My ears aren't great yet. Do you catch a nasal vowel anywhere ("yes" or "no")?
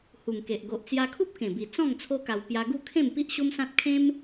yes